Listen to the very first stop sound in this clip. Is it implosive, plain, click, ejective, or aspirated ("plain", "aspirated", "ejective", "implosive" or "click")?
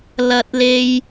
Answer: plain